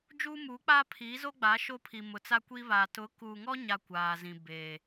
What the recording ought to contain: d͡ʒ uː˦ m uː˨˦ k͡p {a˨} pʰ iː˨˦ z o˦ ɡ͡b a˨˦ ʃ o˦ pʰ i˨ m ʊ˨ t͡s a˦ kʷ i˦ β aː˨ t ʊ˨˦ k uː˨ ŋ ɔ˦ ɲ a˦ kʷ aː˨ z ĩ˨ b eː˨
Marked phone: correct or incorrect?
incorrect